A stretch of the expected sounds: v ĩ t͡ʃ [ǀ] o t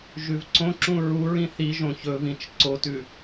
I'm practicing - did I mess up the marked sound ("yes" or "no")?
no